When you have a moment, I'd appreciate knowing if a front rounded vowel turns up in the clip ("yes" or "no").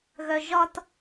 yes